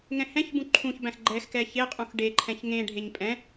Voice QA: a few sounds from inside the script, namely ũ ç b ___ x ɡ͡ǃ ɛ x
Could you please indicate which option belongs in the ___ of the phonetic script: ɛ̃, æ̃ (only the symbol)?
æ̃